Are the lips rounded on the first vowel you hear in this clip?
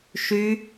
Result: yes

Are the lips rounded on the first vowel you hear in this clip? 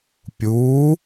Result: yes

